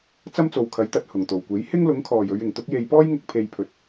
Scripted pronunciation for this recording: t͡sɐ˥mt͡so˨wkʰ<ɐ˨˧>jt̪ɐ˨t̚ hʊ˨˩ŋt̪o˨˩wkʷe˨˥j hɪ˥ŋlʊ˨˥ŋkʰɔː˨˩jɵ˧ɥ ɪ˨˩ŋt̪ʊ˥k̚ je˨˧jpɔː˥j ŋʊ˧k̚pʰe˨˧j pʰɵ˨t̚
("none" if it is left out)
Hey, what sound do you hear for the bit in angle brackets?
ɐ˨˥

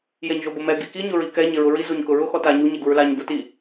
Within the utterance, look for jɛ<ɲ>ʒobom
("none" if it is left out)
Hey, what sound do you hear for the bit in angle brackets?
ɲ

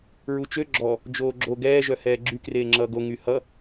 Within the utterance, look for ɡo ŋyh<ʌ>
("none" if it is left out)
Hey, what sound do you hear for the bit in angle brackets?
ʌ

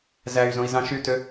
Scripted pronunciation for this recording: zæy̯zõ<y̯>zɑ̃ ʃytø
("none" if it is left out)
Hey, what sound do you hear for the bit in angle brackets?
i̯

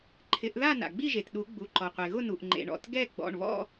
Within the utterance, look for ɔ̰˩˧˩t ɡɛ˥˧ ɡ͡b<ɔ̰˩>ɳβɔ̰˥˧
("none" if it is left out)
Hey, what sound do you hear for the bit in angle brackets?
ɔ̰˩˧˩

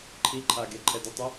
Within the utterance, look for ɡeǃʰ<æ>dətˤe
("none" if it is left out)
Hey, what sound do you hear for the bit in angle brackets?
ɛ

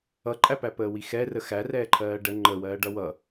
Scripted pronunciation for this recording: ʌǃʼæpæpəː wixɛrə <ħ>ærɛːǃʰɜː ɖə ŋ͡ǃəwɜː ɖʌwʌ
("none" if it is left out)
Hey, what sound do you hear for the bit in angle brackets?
x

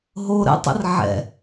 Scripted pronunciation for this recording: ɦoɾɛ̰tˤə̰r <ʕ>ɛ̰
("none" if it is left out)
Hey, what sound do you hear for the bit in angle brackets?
ʕ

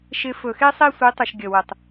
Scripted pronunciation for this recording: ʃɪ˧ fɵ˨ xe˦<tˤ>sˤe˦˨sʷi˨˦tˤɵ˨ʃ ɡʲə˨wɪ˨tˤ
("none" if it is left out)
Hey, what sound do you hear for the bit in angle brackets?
none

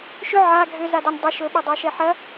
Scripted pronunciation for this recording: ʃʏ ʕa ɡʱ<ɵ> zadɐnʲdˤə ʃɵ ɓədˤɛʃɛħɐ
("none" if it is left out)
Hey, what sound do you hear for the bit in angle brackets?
ø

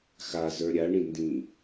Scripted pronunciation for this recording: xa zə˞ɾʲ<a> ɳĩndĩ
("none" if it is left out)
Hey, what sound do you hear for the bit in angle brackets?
a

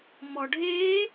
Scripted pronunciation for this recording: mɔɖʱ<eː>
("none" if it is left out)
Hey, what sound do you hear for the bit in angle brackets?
eː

